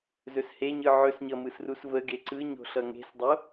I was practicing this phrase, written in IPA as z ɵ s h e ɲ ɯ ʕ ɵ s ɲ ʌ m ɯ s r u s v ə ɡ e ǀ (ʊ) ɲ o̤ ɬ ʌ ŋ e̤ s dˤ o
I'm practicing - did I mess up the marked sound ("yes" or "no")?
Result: yes